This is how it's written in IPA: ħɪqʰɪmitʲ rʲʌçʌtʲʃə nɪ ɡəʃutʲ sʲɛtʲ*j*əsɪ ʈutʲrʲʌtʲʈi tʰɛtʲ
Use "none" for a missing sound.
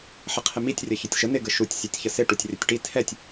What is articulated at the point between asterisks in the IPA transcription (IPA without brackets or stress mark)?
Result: ç